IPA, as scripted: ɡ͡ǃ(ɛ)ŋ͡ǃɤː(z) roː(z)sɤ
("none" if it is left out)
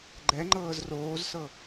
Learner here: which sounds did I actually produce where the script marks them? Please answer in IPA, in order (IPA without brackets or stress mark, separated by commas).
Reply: ɛ, z, z